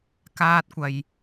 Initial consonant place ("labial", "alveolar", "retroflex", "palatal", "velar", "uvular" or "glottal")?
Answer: velar